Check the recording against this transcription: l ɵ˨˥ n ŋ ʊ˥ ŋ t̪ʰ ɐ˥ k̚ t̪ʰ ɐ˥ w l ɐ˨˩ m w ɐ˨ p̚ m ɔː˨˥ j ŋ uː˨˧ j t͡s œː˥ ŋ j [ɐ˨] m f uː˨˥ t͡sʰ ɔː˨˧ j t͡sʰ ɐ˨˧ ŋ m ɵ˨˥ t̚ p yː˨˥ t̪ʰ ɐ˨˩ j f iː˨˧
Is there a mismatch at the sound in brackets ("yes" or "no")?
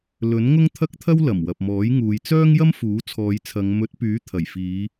yes